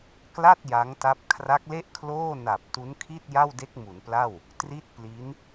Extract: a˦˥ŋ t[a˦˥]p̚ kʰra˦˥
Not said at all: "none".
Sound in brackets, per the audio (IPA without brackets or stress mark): a˦˥